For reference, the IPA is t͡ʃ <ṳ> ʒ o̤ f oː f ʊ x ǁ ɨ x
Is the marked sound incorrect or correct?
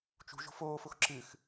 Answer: correct